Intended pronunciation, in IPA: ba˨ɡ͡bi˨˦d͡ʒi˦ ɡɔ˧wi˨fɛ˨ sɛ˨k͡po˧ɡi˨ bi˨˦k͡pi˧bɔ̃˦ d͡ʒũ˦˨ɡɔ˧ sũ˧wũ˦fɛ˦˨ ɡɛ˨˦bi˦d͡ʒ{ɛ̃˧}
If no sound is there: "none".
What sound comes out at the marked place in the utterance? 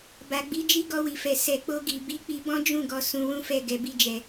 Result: ɛ˧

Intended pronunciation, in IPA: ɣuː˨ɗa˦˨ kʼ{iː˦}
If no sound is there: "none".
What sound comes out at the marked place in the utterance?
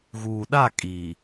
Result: iː˨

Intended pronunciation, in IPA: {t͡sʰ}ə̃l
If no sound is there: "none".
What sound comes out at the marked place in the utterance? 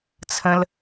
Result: t͡sʰ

